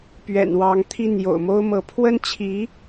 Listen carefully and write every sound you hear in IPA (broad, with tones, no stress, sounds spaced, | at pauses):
p ɥ ɛ̰˨˩ n w ɑ˧˥ ŋ t̪ʰ i˥˩ n j o̰˨˩ ʊ̯ m o˥ ʊ̯ m ɤ˧˥ pʰ w ə˥ n t͡ɕʰ i˧˥